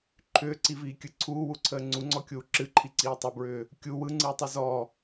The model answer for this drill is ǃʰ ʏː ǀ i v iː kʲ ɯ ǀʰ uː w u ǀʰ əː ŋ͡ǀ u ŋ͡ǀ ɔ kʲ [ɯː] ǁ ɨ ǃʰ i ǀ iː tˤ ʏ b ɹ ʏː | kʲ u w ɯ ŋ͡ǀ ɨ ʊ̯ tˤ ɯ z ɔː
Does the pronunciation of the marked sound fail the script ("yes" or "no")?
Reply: yes